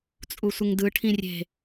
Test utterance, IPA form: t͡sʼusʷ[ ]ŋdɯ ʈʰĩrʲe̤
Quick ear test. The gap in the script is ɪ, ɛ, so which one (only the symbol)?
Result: ɪ